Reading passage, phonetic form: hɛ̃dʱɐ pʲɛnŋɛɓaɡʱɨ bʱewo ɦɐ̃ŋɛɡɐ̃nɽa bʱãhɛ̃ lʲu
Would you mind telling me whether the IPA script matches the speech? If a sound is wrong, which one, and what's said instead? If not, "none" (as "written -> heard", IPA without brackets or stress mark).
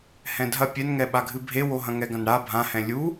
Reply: none